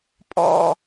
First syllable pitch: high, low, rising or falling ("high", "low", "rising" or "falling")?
high